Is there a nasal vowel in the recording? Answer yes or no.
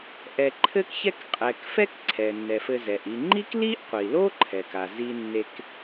no